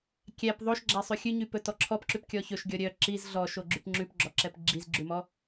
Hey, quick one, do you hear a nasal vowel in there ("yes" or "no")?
no